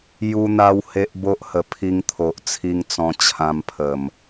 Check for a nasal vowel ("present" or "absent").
present